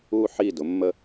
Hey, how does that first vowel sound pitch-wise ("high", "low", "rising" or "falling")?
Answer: high